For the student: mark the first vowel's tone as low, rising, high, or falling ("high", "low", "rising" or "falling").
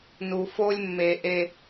low